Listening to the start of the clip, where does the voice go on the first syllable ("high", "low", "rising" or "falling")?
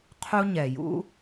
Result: high